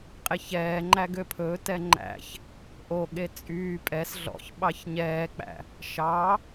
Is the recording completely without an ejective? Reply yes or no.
no